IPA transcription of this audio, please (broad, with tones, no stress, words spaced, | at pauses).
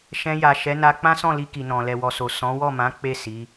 ʃɛ̃˧ja˨ʃɛ˨˦na˧ k͡pã˦sɔ̃˦˨li˧ ki˨nɔ̃˨ lɛ˨wɔ˨so˨ sɔ̃˨˦wɔ˦˨mã˨˦ k͡pe˦˨ si˨˦